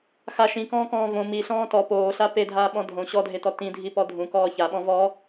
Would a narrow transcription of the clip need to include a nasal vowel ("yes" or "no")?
yes